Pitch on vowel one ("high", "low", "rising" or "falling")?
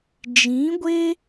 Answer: rising